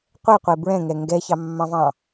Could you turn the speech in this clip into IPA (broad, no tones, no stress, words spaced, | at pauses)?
qʷɛqʷe bɹɛ̃ŋɛ ŋɡɛçɑmːɑ̃vɑ̃